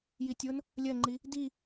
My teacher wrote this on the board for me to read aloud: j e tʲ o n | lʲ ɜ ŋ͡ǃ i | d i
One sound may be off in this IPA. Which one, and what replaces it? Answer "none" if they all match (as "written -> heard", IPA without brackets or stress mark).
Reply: e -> i